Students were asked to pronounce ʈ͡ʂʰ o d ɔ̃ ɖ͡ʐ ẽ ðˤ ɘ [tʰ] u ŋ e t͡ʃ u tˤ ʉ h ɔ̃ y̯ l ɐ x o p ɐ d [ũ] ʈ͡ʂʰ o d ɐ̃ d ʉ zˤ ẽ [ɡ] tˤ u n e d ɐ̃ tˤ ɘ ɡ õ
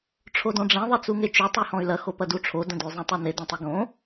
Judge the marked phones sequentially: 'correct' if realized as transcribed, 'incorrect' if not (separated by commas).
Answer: incorrect, incorrect, incorrect